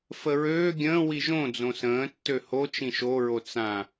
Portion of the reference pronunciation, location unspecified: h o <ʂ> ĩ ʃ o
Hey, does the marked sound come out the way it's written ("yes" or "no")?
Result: no